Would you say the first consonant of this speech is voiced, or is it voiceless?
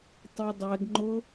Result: voiceless